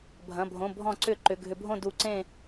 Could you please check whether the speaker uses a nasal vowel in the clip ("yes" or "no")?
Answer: yes